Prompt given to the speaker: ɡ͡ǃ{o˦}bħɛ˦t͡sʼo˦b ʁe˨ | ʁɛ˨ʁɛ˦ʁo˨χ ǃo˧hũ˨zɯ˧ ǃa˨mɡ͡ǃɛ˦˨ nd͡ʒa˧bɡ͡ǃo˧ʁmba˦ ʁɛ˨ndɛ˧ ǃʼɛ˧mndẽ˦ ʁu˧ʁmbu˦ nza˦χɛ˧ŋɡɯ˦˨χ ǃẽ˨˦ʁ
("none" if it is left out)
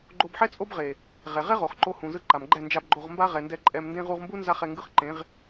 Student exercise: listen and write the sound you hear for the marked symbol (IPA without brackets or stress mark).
o˧